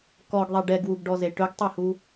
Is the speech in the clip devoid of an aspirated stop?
yes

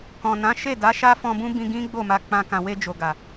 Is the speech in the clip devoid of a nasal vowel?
no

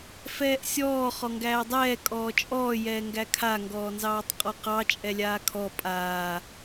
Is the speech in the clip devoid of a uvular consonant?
no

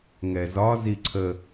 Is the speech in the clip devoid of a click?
no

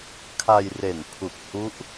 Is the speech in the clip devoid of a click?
yes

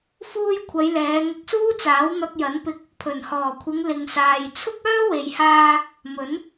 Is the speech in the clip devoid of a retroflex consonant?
yes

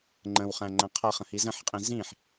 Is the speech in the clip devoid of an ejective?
no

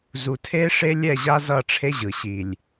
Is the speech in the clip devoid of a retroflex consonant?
no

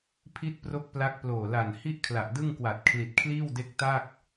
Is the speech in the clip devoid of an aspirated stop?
no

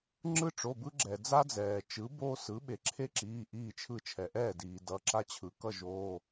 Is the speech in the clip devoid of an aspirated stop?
no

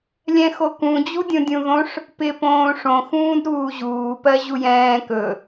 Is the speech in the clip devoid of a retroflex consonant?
no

